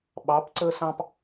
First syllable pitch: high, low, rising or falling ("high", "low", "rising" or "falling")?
rising